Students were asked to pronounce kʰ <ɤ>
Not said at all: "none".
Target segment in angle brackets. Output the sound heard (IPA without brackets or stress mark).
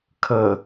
ɤ